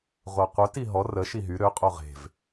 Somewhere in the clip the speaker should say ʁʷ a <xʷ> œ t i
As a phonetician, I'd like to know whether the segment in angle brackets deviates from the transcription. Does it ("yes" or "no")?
yes